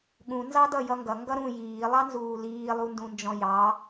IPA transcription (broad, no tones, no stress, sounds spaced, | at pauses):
ɠ ũ n z ɑ d ʌ j ʌ ŋ ɡ ʌ ŋ ɡ ʌ ɾ ũ j iː lˠ ɑ n z uː l iː lˠ u n d ũ n d͡ʒ ɔ̃ j ɑ